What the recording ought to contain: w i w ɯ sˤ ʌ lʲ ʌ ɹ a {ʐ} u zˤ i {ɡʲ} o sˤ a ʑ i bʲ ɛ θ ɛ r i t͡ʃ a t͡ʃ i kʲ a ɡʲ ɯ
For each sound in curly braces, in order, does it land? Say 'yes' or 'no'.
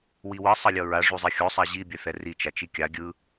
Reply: yes, no

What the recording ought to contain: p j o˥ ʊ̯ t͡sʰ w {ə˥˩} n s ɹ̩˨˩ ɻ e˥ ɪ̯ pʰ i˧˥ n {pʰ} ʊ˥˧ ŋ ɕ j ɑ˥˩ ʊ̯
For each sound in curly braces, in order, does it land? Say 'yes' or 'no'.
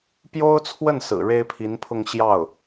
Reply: yes, yes

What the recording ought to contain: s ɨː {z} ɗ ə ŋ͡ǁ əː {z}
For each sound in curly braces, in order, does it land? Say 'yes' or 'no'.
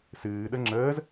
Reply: no, yes

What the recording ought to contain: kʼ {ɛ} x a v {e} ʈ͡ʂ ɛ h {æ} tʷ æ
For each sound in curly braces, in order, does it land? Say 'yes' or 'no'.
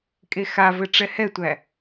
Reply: no, no, no

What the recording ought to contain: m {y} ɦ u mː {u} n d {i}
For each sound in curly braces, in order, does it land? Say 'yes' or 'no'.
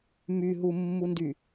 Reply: yes, yes, no

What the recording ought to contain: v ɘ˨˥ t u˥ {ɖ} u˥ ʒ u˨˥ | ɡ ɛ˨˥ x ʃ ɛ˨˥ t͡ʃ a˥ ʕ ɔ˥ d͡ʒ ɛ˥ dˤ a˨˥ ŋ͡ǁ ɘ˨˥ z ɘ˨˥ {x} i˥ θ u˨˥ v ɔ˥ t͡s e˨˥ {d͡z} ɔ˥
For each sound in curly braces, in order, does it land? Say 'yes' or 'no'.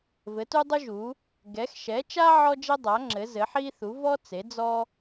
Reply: no, no, yes

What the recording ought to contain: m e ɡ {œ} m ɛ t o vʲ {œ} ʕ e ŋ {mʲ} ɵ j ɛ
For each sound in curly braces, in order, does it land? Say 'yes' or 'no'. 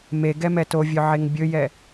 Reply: no, yes, no

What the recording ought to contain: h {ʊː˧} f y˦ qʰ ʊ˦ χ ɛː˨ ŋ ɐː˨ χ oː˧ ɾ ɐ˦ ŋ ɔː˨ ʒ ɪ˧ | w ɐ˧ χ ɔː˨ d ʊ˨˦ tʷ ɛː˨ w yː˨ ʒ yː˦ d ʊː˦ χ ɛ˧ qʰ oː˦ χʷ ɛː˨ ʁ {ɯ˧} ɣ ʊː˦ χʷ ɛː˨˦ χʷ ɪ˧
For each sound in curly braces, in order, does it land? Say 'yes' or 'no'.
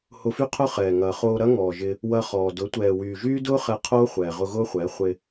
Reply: no, no

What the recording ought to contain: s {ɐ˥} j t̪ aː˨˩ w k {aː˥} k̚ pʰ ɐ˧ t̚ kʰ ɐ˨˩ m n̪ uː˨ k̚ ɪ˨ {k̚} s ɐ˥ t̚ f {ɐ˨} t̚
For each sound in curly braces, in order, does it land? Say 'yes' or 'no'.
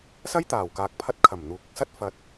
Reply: yes, no, yes, yes

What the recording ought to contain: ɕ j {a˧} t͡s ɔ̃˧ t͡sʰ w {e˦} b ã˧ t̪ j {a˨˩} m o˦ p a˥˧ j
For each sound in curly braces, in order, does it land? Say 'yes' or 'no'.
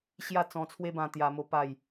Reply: no, yes, no

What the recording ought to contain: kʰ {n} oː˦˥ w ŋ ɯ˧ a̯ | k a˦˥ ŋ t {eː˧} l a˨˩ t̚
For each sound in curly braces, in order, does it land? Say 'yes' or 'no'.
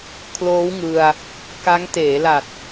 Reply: no, no

